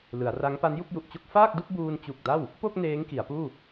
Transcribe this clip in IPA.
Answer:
l ɯ˩˦ a̯ r a˦˥ ŋ p a˦˥ n j u˥˩ k̚ j u˨˩ ʔ t͡ɕ o˥˩ k̚ f aː˥˩ k̚ d u˥˩ k̚ b uː˧ n t͡ɕ u˨˩ k̚ d a˥˩ w | p o˥˩ k̚ n eː˦˥ ŋ k i˩˦ a̯ p uː˥˩

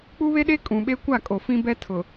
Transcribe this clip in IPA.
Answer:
k͡p u˦ β e˦ ɗ e˦ kʼ ũ˨ ɓ e˦ kʷ a˦˨ kʼ o˨ f ĩ˦ b ɛ˦ tʰ ʊ˨

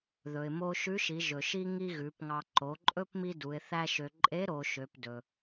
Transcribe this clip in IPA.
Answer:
ð ɵ˩ ɪ̯ m o˥ ʃ ʉ˧˥ ʃ i˩˧ ʒ ɵ˩ ʃ i˥ ŋ i˥ ɣ ʉ˩˧ p ŋ ɑ˧ ǃ o˩˧ ǃʼ ɵ˥ p m i˥ d u˩˧ ɪ̯ θ æ˥ ʃ ø˧ ǃʼ e˧˥ ɾ o˩˧ ʃ ø˩˧ p d ɵ˩

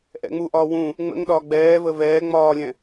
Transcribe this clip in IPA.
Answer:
ʔ ɛ̰ ŋ͡m u ʔ ɒː w ũ | ŋ͡m ə̰ ŋ ɗ ɒː ɡ͡b ɛː v ə v ɛː ŋ͡m ɒː lʲ ɛ̃

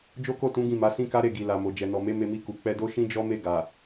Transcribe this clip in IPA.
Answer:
d͡ʒ o˦ k o˦˨ t ũ˨˦ ɡ ĩ˦˨ m a˨˦ s ĩ˦ k a˦ ɾ e˦˨ ɡ i˨ l a˨ m o˨ d͡ʒ ɛ˨ n ɔ˨ m e˨˦ m e˧ m i˧ k u˨ k͡p ɛ˧ d o˦ ʃ ĩ˦ d͡ʒ ɔ˦ m e˦˨ ɡ a˨

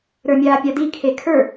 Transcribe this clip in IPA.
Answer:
ɾ ə˞ mʲ aː pʲ a d i kʰ e kʰ ə˞

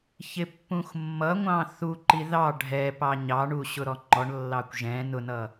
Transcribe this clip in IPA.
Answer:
ç ɪ pː ũ x mː ʌ ŋʷ ɑ̃ θ u ǃ i ð ɑ ɖʱ ɛ p ɑ ɲ ɑ ɳ u ɕ ʊ ɾ ɔ ŋ͡ǃ ɔ ɳ lː ɑ kʷ ʒ ɛ̃ n ʊ n ʌ

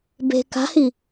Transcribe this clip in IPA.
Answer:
b e̤ k a̤ h i

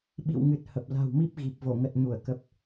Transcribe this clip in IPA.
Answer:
ɓ ḭ˧˨ w ŋ ɨ˨˩ t̚ h ə˨˩ p̚ l a̤˨˩ w m i˦˥ p̚ ɣ i˨˩ p̚ v o˧˩ ŋ ə˨˩ t̚ ɲ u˧˩ ə̯ k ə˨˩ p̚

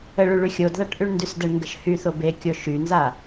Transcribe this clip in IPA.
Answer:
ə ɭ y ɭ y xʲ o d ð a ʈ ʔ y ɳ n d y s d ə ɳ ŋ ɡ ə ʃ h y θ o b e kʲ o ʃ y n z a

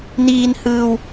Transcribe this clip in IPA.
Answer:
n iː˧ n h ɯː˧ w

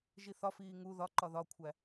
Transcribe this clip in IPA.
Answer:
ʒ i θ ɒ f iː ŋ u ð ɒ ǃ ɒ ð ɒ kʷʰ æ

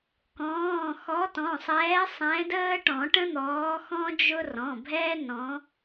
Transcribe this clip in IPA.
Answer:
k ɔ̃ː˩˧˩ x ɔ˨˦ t ɔ̃˩˧˩ sˤ ɛː˨˦ sˤ ɛ̃˨˦ d əː˦ ʈ ɔ̃˨˩˦ ʈ ə̃˦ n̪ ɔː˨˦ x ɔ̃˦ d͡ʒ ʊ˦ r ɔ̃˩˧˩ bʱ ɛː˦ n ɔ̃˨˦

